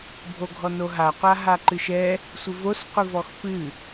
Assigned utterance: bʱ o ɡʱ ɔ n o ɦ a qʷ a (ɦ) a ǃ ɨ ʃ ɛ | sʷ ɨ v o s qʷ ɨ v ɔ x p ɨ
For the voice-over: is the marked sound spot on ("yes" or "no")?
yes